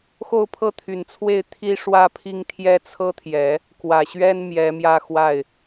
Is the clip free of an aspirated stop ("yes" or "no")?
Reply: no